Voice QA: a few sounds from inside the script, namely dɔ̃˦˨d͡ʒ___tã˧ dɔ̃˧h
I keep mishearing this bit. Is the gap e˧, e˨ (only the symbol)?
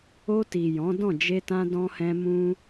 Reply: e˧